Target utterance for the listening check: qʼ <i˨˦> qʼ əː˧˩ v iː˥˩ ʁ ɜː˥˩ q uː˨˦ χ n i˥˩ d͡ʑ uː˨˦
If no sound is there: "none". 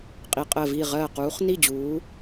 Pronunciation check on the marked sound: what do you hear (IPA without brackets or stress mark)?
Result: i˨˦